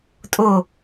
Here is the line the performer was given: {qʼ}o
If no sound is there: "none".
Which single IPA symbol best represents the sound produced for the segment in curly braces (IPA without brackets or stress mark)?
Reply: tʼ